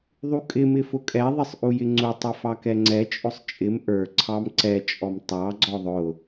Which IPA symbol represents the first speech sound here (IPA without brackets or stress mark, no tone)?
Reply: ðˤ